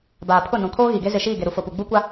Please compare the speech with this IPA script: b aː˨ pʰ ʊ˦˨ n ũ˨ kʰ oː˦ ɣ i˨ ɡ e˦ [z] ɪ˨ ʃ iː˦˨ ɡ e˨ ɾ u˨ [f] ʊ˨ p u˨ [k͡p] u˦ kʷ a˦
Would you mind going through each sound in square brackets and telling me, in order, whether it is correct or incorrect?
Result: correct, correct, incorrect: ɡ͡b

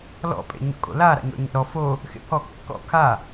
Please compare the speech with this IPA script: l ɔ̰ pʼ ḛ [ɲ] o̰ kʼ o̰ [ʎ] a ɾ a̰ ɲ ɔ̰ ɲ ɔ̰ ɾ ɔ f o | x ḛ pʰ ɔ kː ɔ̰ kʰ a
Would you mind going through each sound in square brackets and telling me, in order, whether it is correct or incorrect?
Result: correct, incorrect: l

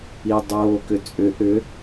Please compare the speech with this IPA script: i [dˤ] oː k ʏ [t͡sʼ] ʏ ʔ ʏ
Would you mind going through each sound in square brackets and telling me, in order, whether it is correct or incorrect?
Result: correct, correct

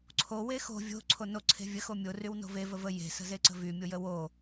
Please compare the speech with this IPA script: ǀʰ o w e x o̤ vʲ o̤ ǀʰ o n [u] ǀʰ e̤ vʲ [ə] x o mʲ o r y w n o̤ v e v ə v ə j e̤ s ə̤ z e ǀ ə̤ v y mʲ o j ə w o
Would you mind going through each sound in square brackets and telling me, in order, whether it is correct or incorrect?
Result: incorrect: o, correct

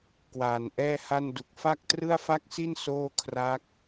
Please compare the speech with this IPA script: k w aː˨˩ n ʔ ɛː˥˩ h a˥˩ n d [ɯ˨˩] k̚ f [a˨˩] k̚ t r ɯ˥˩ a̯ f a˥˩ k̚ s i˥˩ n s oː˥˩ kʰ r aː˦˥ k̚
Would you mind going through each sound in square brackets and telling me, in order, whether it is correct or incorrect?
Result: incorrect: u˨˩, incorrect: a˥˩

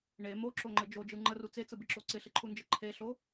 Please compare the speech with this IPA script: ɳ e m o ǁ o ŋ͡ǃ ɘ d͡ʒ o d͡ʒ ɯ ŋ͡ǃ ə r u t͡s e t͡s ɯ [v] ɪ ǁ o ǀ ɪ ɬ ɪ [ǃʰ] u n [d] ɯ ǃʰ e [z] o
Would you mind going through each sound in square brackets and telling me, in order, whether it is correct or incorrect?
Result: incorrect: b, correct, incorrect: d͡ʒ, incorrect: ɬ

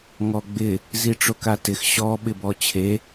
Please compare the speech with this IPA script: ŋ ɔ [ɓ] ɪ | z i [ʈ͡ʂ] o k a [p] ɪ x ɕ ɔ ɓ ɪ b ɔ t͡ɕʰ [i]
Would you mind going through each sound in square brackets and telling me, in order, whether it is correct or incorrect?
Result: incorrect: ɡ͡b, correct, incorrect: t, incorrect: e

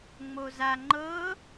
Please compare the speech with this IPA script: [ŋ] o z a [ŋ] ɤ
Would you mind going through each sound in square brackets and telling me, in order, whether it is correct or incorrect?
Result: incorrect: ŋ͡m, incorrect: ŋ͡ǃ

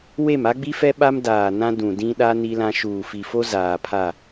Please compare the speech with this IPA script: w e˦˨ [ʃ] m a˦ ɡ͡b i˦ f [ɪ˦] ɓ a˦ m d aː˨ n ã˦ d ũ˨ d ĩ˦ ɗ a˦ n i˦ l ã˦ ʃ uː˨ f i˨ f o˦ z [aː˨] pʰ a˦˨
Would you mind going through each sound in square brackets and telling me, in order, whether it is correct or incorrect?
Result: incorrect: none, incorrect: ɛ˦, correct

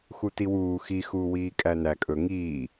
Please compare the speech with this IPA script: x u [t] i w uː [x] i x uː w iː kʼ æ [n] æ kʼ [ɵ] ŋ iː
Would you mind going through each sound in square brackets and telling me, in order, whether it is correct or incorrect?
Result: correct, correct, correct, correct

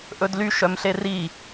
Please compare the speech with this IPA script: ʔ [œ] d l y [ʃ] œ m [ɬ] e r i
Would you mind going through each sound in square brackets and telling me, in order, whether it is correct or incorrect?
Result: incorrect: ɵ, correct, correct

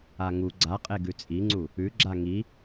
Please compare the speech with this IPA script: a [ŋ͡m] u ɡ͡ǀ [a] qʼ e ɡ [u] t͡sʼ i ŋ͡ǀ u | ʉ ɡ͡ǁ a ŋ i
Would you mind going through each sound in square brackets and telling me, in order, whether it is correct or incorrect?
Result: incorrect: ŋ, correct, incorrect: ʉ

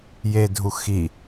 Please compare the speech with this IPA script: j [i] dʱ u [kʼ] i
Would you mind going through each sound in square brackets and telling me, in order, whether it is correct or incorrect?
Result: incorrect: e, incorrect: x

